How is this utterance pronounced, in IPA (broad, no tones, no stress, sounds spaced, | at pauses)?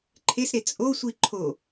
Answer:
ǃʰ e s ɾ e t͡sʼ o sʷ i ǃʰ o